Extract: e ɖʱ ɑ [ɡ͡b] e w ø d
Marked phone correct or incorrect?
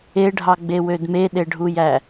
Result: correct